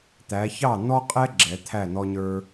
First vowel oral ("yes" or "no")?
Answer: yes